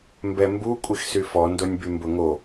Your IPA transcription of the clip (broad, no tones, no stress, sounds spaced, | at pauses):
m b ɛ m b u kʷʼ i x s y f ɔ n d o nʲ b y m b ʊ ŋ o